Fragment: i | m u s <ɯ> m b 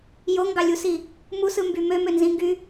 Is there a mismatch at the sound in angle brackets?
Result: no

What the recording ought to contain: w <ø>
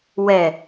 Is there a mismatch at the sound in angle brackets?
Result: yes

